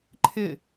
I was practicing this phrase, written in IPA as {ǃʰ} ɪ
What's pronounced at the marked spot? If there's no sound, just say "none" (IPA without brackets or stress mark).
ǃʰ